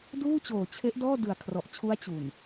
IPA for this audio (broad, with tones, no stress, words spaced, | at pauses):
duː˥˩ t͡ɕoː˨˩t͡ɕʰe˦˥ʔdɔː˥˩ dɯ˨˩a̯kʰrɔ˨˩ʔt͡ɕʰu˦˥a̯ t͡ɕu˨˩n